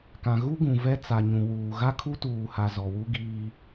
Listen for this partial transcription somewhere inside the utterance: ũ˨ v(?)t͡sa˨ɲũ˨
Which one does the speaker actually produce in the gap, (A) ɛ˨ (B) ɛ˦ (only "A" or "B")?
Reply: B